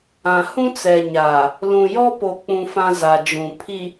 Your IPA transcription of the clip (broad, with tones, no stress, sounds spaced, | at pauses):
ã˨ h ũ˦ t͡s ɛ˨ ɲ aː˨ | l ũ˨ j ɔ˦ p o˨ k͡p ũ˨ f ã˦ z a˨ d͡ʒ ũ˨ pʰ i˨